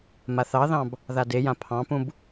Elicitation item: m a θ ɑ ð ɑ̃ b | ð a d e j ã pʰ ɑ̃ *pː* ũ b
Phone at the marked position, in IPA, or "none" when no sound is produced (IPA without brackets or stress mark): p